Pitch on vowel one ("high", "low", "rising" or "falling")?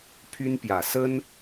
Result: high